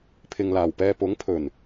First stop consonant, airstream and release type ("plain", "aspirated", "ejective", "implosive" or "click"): aspirated